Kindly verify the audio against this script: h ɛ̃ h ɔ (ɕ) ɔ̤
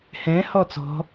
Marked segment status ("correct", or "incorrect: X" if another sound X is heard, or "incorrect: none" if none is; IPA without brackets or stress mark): incorrect: t͡s